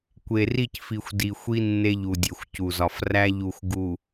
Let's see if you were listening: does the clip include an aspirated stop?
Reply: no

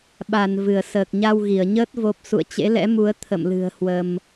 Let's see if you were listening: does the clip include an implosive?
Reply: yes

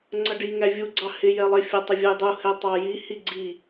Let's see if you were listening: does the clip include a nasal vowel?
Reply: no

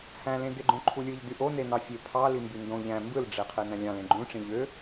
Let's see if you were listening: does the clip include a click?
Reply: yes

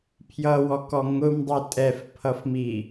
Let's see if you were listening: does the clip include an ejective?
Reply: yes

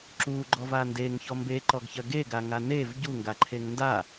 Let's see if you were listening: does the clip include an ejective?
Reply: no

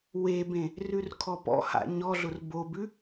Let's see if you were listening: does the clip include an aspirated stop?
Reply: yes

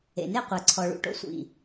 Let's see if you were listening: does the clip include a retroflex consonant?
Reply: yes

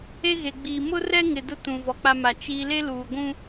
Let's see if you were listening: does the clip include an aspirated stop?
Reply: no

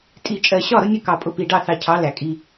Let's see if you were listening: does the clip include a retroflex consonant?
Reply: yes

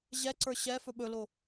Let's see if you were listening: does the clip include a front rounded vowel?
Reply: no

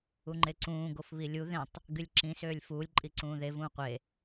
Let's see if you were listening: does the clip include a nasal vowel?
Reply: yes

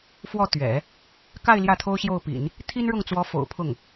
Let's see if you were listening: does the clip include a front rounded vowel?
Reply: no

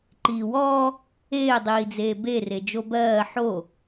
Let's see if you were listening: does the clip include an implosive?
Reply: no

